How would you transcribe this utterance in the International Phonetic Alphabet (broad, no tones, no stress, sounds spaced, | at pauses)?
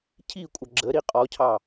cʰ i kʷʼ ʌ ɡ͡ǁ ə ɾ i qʼ ɔ cʰ ɑ